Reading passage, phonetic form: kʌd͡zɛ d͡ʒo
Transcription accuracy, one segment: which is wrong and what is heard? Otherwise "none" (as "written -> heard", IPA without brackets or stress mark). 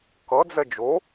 none